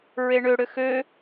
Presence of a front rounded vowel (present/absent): present